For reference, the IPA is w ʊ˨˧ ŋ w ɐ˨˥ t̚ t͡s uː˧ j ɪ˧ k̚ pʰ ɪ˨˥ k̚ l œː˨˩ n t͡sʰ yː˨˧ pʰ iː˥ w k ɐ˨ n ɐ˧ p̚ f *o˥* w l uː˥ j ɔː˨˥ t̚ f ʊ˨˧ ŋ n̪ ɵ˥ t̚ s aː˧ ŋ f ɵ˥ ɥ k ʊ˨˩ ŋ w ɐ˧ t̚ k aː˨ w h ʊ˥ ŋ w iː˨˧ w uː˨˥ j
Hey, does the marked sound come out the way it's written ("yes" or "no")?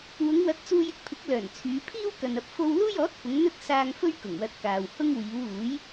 yes